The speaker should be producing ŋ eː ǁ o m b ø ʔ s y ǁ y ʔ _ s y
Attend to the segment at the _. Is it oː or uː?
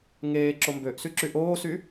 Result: oː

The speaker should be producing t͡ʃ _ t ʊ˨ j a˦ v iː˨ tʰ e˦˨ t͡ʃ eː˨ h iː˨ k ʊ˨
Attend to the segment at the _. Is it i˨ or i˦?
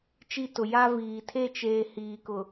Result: i˦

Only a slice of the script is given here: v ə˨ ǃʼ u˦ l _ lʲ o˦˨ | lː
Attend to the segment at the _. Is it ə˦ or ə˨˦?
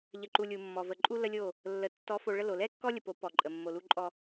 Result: ə˦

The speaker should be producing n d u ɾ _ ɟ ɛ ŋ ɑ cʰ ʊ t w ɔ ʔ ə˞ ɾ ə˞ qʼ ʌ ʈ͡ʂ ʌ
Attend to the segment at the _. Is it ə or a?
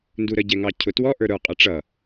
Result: ə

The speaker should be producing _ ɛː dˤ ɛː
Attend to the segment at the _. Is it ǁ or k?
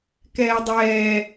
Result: k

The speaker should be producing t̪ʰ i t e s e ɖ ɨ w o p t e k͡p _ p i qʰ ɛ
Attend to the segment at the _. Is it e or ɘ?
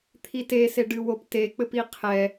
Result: ɘ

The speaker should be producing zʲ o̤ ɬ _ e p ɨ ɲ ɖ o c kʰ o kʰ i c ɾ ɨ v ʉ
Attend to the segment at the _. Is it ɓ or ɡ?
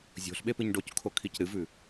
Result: ɓ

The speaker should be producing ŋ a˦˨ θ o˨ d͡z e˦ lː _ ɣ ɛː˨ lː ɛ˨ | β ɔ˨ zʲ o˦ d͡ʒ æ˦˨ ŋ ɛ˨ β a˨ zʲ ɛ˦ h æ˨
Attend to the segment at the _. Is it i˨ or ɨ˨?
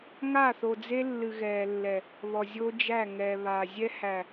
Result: ɨ˨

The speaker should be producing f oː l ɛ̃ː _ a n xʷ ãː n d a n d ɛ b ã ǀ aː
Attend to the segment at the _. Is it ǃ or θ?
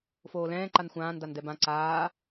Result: ǃ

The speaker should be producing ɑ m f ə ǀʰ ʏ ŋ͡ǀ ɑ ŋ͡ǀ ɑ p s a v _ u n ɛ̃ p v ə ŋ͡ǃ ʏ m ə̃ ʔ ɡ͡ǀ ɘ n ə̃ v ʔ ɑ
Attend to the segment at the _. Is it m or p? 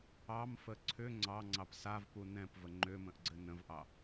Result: p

